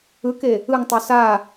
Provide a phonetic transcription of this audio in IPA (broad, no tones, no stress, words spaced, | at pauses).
ɯke | ɯŋtˤo sa